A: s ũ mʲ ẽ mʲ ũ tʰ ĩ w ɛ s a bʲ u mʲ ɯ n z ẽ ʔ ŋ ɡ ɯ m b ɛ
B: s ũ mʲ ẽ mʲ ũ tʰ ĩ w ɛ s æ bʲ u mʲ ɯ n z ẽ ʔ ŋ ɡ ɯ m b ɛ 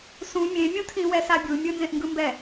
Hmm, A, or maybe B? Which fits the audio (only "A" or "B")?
A